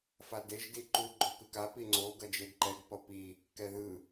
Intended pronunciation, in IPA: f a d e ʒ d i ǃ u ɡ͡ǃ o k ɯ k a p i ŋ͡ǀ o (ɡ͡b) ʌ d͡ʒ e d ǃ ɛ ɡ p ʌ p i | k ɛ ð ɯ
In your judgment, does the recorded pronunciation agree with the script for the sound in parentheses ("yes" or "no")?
no